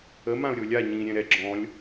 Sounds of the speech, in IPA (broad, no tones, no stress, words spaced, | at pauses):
ə mãʊ̯ɾʲolʲa ɲĩ ɾʲɛ̃ɾɛ ɡ͡ǁɔ̃lʲ